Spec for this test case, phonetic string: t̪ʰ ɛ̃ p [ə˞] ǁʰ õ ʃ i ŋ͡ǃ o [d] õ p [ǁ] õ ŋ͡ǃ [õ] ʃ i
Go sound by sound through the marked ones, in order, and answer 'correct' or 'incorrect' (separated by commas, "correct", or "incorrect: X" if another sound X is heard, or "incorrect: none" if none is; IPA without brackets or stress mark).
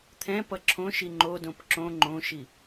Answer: incorrect: ʌ, correct, correct, correct